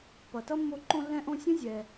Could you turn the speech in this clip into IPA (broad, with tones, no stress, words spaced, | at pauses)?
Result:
pʌ˨tʌ˥mːo˦ ǃõ˦lːɛ̃˦ʔõ˦sʲə̃˥ zʲɛ˨